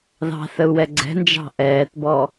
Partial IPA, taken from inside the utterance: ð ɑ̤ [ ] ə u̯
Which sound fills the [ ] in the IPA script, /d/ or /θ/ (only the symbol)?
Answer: θ